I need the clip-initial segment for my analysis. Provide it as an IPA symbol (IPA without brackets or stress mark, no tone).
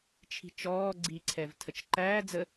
t͡ʃʰ